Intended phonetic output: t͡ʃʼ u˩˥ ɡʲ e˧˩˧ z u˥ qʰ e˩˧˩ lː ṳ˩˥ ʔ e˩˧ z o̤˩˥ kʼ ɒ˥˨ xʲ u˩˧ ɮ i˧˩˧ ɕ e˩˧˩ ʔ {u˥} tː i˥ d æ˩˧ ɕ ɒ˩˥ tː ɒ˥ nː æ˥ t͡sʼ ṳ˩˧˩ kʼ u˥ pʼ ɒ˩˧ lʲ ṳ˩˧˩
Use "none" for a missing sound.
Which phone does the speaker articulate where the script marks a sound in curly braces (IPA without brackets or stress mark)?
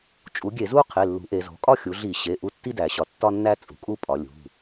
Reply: u˥